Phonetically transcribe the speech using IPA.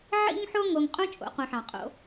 ʕ ḭ˦ ŋ ħ o˦ ŋ o˨ ŋ qʼ ũ˥ t͡ʃʼ o̰˨ q ũ˨ ħ ɑ̃˩ qʼ o̰˦

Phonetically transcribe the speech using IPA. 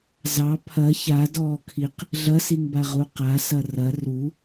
z ɑ pʰ ɐ ç a d ɔː kʰ i q | ɮ ɐ s i ŋ b a ʁ u q a s ɐ r ɐ r u

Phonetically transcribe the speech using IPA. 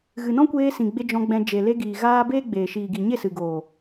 ɣ ɨ˨ n ɔ̃˦ kʷ eː˧ s ĩ˨ ɡ͡b e˧ d͡ʒ ɔ̃˧ ɡ͡b ɛ̃˧ d͡ʒ e˨ l e˧ ɡ iː˨ ɣ aː˧ b eː˦ ɡ͡b eː˨ ʃ iː˨ ɡ i˨ ɲ e˦˨ s ɨ˨ ɡ oː˨

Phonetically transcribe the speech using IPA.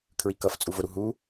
kʰ ɹ i k ʌ f t͡sʼ u v ʊ ɾ u ɦ u

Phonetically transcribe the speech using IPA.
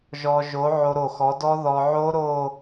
ʒ ɔ˧ ʒ o˨˥ ʕ o˧ ɾ o˧˩ x ɔ˨˥ d ɔ˦˥ ð ɔ˧ ʕ o˦˥ ɾ o˥˧

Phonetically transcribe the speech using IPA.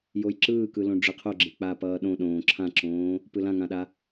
j o j ǁ ɯː k ɯ l õ ɖ͡ʐ ɯ qʰ o ɡ͡ǁ e k͡p a p ʌː ɗ õ ɗ õː ǁʰ ã ǁ õː | p ɯ l ã ŋ ã ɗ a

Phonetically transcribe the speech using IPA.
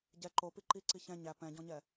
ɟ ɛ ǃ o p i ǃ i ǀ i ç ɛ̃ ɲ æ p ɛ̃ ɟ ɔ̃ ɲ ɛ

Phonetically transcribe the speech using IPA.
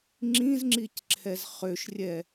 ŋ͡ǁ ĩ z ŋ͡ǁ i c ǁʰ ɛ z χ ø ʃ rʲ ɛ

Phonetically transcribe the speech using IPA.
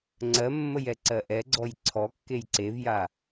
ŋ͡ǀ ɜ mː ə j ɛ ǀ ɜ ʔ ɛ ɡ͡ǀ ɔ j ǀʰ ɔ kː e j ǀ e v j a

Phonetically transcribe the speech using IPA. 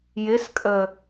j ɪ s kʼ ə

